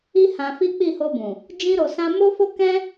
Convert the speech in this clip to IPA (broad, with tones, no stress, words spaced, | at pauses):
i˦hã˧fi˦ k͡pi˦˨ho˧bũ˨ | d͡ʒĩ˦ɾo˧sã˦ mo˦fo˦ kɛ̃˦